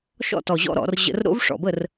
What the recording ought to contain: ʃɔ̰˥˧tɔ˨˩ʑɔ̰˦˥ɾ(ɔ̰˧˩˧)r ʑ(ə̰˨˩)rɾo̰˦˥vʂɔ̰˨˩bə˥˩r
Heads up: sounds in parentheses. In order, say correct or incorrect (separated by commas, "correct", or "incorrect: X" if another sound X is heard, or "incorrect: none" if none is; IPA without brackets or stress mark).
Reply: correct, incorrect: ə̰˧˩˧